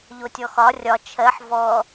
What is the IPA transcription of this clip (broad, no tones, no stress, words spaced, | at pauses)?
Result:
ʎotʲɔxɒ rʲɒ t͡ʃʰɜħ vɔ